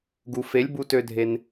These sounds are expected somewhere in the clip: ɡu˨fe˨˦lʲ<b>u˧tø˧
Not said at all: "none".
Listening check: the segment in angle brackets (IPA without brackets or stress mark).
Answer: b